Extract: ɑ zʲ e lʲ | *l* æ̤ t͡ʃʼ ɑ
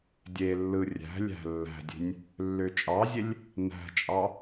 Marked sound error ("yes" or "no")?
yes